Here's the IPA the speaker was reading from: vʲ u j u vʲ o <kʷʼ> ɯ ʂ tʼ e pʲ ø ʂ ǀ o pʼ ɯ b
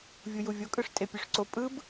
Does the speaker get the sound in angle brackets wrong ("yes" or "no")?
yes